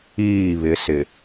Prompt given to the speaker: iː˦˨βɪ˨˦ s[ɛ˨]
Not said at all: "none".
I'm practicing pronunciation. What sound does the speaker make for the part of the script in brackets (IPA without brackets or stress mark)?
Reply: ɪ˨